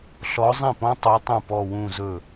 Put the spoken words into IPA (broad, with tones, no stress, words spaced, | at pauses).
ɬɔ˧˥zˤĩ˥˩pɔ̃˥ tˤu˧˥tˤũ˥˩ pɔ˥˧wũ˥˧zɵ˥˩